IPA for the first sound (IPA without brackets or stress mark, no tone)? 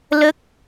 l